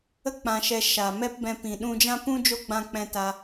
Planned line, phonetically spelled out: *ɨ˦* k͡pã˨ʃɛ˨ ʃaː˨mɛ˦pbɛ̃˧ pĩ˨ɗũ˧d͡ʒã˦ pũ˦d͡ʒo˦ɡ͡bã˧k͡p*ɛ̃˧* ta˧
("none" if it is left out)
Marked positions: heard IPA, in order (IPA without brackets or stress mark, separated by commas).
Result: ə˦, ɛ̃˧